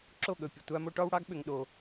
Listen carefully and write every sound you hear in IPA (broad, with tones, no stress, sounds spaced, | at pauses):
ǁ o˦˨ ɠ ɵ˨ pʲ ɨ˨ tʷ a˦ m o˦ ʈ ɔ˦ w ɽ ɑ˦ ɡ ɓ ʏ˧ ŋ ɗ o˧